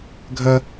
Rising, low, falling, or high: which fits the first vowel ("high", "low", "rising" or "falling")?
high